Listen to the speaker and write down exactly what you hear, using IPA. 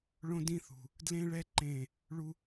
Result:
ɭ õ˦ d ĩ˦ θ ṳ˨ | d l ẽ˦ ɭ ɛ˦ ǃ ẽ˦˨ | ɭ u˦

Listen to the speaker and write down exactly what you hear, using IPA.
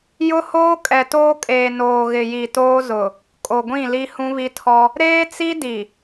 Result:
j ʊ˦ h oː˦ kʼ ɛ˨ t oː˦ kʼ eː˨ n oː˨ ɣ ɪ˨ j i˨ t oː˦ z ʊ˨ | kʼ o˨ ɡʷ ĩ˦˨ l i˦ h ũ˦ β i˦ tʰ ɔ˦ | ɾ eː˦ t͡s i˦ d i˨

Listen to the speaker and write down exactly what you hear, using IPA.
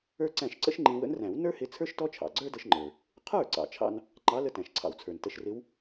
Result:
ə˞˥ ǀ æ̃˥˩ ʃ ǀ ə̰˥ ʃ ŋ͡ǃ ĩ˧ w ə̰˧˥ n r æ̃˨˩˦ w n ə˞˥ h ɪ˧˥ t͡sʰ ə˞˥ ʃ t ɔ˥ t͡ʃʰ ɑ̰˩ ɡ͡ǀ ə˞˥ d ə˧ ʃ ŋ͡ǃ ə˞˩ | qʰ ə˞˥˩ ǀ ɑ̰˩ t͡ʃʰ ɑ̰˥ n | ŋ͡ǃ ɑ˧˥ l ə˧˥ t æ̃˩ ʃ ǀʰ ɑ̰˩ w t͡sʰ ə˞˩ n t ə˧ ʃ r ɪ˧˥ w

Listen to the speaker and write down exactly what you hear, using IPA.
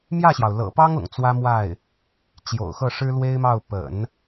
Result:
m j ä˥˩ ɕ j ɑ˩ ʊ̯ l ɤ̰˨˩ p ɑ˥ ŋ ʊ̰˨˩ ŋ t͡s w ä˥ m w a˥˩ ɪ̯ | t͡ɕ j o̰˨˩ ʊ̯ x ɤ˥˩ ʂ ɻ̩˥ l w e˥ ɪ̯ m ɑ˥˩ ʊ̯ p ə̰˨˩˦ n

